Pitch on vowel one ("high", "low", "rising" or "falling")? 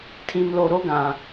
low